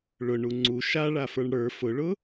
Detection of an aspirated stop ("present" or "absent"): absent